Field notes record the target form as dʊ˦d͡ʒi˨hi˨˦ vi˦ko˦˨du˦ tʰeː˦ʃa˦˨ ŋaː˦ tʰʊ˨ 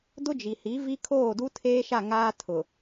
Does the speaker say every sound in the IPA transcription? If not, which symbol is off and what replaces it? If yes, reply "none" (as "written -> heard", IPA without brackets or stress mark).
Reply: k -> kʰ